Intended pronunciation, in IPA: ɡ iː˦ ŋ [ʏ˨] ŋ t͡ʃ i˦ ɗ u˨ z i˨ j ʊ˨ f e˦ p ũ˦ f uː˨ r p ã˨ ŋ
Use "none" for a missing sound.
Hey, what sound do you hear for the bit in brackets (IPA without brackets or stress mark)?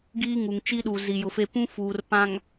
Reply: u˨